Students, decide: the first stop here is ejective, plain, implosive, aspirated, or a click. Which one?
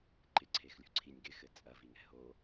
click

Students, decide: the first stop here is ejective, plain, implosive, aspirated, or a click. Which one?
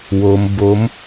plain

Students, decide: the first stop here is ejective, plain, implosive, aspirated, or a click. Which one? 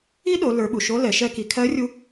implosive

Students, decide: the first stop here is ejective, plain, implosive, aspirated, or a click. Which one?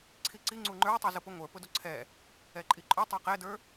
click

